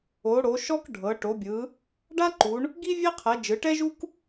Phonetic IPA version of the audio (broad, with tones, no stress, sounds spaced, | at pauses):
o˨˦ ɽ o˨˦ ʃ ɔ˥ k ɖʱ ɤ˨˦ ʈ o˨˦ bʲ ɯ˨˦ | ɖ a˥ ǃ u˨˦ ɳ | ɡ i˥ vʲ e˥ qʰ ɛ˨˦ d͡ʒ ɯ˨˦ ʈ ɛ˥ ʒ u˥ k